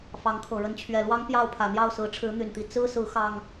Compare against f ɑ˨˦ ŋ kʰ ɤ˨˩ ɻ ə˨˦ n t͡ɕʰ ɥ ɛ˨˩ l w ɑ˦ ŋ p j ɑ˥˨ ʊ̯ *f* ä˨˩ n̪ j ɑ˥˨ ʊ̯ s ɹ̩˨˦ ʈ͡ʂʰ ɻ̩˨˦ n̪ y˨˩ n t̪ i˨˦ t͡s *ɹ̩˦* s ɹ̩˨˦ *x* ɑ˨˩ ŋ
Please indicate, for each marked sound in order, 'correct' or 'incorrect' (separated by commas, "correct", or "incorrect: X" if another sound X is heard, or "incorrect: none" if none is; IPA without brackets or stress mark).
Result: incorrect: pʰ, correct, correct